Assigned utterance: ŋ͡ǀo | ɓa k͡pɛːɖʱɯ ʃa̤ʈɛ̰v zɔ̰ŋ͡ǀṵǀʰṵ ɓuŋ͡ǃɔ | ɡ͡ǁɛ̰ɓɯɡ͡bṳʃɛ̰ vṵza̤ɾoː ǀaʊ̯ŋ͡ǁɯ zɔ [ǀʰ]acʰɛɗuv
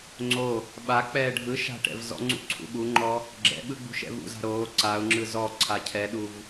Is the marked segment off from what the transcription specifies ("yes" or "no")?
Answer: no